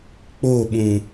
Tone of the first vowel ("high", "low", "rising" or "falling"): falling